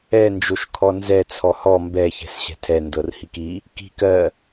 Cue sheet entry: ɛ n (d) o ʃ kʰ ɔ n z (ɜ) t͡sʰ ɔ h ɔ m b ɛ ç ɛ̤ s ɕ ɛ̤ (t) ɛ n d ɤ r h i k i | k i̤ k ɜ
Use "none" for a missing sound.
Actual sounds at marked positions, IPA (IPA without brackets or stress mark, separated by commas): d͡ʒ, ɛ, tʰ